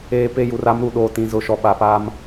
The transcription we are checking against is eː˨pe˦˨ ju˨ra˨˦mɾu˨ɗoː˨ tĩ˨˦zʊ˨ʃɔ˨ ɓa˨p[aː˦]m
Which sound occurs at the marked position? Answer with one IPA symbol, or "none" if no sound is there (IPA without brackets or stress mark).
aː˦